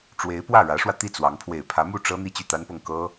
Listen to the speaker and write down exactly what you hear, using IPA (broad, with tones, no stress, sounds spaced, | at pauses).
ʈ͡ʂ w e˧˥ ɪ̯ p w ä˥˩ ɻ ä˧˥ ʂ w ä˧ t̪ i˥˩ t͡s w ɑ˧˥ ŋ pʰ w e˨˩ ɪ̯ pʰ ä˧˥ m u˥˩ ʈ͡ʂ ɤ˥ n̪ i˥˧ t͡ɕ y˥˩ t̪ a˥ n p ɤ˥˩ ŋ k ɤ˥